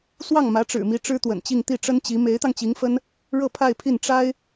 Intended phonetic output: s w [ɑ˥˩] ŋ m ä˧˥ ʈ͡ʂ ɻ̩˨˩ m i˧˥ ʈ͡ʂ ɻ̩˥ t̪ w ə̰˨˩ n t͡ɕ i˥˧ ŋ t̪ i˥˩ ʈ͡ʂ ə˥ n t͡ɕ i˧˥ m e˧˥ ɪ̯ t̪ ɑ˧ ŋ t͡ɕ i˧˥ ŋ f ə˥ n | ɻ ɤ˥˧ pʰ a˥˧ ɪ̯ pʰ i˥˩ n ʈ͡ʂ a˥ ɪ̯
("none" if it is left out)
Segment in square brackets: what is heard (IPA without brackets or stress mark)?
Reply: ɑ˥˩